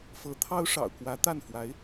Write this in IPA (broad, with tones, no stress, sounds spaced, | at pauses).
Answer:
f ɤ˧˥ t̪ʰ ɑ˥ ʊ̯ ʂ ɑ̰˨˩ ʊ̯ k w ä˧˥ t̪ a˥˩ n f w a˧˥ ɪ̯